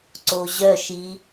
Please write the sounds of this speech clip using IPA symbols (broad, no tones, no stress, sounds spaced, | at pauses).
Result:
ǀ o ʑ œ ʃ i